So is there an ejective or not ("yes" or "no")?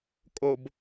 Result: yes